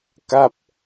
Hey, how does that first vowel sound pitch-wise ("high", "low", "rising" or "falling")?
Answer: falling